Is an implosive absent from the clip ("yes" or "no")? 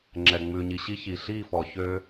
yes